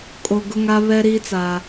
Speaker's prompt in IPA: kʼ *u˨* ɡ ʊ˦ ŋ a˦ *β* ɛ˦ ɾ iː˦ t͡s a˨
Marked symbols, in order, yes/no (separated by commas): no, yes